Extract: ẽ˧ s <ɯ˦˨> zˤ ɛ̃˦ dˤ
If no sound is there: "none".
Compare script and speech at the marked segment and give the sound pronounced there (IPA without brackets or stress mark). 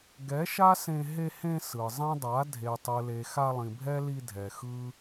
ɯ˨